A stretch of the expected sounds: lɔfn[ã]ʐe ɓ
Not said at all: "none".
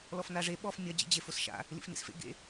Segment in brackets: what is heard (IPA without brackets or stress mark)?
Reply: a